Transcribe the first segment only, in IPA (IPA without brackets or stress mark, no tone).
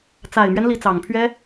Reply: t͡s